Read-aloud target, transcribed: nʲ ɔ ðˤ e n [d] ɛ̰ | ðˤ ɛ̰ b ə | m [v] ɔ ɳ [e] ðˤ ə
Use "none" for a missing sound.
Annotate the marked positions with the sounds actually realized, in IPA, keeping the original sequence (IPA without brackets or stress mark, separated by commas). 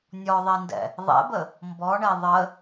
d, b, e